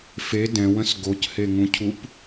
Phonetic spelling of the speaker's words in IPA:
fe dɛ̃wə̃s ɡocheŋũcʰup

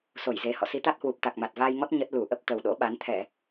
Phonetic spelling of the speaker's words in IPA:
so˧˩jze˨˩ hɔ̰˧˨si˨˦t̪a˦˥t̚hwu˨˩p̚ t̪a˨˩k̚ma˨˩t̚vaː˧jŋɔ˦˥t̚ ɲə˦˥t̚ lu˧˩ʔə˦˥p̚ t̪ə˨˩wɗo̰˧˥ɓa˨˦n t̪ʰɛ˧˩˨

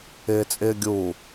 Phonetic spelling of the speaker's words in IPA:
ɪːt͡sʼɪːɡʲuː

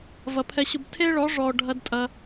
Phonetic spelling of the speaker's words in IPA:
vɐ˨pʰɛ˧ɕʊ˧b tʰe˦ɭɔ˨˦ ʐɔ˨ ɖʱɐ˦dtʼɐ˧

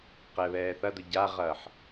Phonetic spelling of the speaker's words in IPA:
qɛβɛːθɐdʊ ɟaʁɐːħ

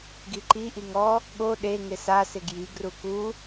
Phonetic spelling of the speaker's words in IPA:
ɡiǃi ʔiŋɔ | ɠo ɗe ŋɪsasɪ ɡji ɡruku

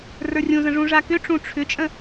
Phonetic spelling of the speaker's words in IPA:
rə˞rʲũzə̃ ʐũʐakʏʈ͡ʂũ ʈ͡ʂʰʏt͡ʃʼə̃

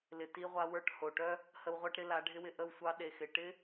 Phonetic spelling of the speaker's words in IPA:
lɪ˨ti˧ʁʷa˧ wə˞˦˨ʈho˨ ʈœ˦ | hə˧wʁʷɑ˦ʈɾɪ˦ la˨˦ɖʱɪ˦wɪ˧ ʔə˦˨wsʷɑ˦ ɗe˨xɪ˨ ʈɪ˦

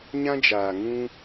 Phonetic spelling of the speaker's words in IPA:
ɲã˦d͡ʒaː˨ ŋũ˦

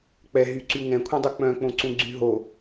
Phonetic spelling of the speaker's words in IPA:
k͡pɛ ɦyǀy ŋɛ̃kʷʰɛ̃dˤu k͡pœ̃k͡põǀũɡ͡ǀy ɦo

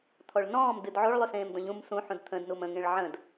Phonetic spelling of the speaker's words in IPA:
t̪ʰɔɭnɔ̃ːm dɨdʕoɭ lˠʉsẽːmdɔ̃ʎũm sũħũd t̪ʰə̃dnum ə̃ŋẽɭ ʕə̃d

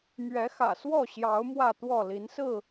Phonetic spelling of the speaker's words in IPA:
mɥɛ˨˦xä̰˨˩ swɔ˥˨ɕjɑ˨˦ʊ̯ mwä˥˨t̪wɔ˥˨ li˨˦nsɹ̩˥˨

